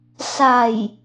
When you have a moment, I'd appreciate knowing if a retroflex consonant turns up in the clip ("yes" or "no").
no